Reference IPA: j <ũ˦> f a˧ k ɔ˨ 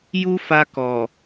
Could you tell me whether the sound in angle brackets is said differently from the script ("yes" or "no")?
yes